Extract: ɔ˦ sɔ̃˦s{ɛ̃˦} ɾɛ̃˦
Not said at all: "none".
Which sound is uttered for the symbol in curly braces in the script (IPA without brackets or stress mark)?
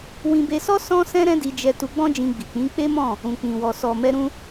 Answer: ɛ̃˦